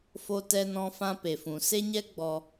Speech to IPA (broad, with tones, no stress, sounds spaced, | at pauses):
f o˧ t ɛ˧ n ɔ̃˧ f ã˧ p e˨ f ũ˨ s e˦ ɲ ɛ˦ ɡ͡b ɔ˧